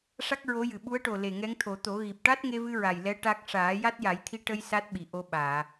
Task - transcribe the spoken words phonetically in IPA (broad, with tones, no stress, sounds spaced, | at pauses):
ʂ a˦˥ k̚ ɹ o˧˥ j ɨ˨˩ ɓ u˧˥ ə̯ ʈ o˨˩ l e˨˩ ŋ ɛ˧˥ ŋ t̪ʰ o˨˩˦ t̪ o˨˩˦ ɣ i˨˩ p̚ ʈ a˦˥ t̚ ŋ e˧ v ɨ˧ ɹ a˨˩ j l ɛ˧˥ ʈ a˦˥ k̚ ʂ aː˨˩˦ j a˦˥ t̚ j a˨˩˦ j t̪ʰ i˧ ʈ ə˧ j s a˦˥ t̚ ɓ i˨˩ ʔ o˧ ɓ aː˨˩˨